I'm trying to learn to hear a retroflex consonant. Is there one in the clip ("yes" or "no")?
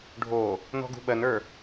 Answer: yes